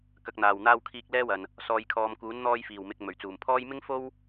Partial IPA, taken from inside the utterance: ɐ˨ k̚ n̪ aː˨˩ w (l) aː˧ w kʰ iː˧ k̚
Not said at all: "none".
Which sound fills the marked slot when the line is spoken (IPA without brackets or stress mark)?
n̪